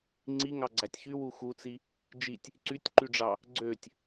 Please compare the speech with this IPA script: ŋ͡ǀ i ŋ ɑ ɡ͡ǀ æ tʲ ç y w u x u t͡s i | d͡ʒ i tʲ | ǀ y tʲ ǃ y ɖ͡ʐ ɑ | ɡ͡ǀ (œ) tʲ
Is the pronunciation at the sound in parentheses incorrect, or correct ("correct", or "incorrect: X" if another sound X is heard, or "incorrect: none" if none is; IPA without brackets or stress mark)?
incorrect: ø